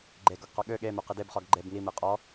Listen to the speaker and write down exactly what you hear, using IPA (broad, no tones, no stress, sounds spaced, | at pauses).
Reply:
ɡ͡ǃ e ɡ ɔ ɡ q ɔ ɠ ø ɠ e m ø q i d e b χ ɔ ɡ ɡ͡ǃ e b ŋ i m e qʼ ɔ